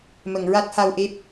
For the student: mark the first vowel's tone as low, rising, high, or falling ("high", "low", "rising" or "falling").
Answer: low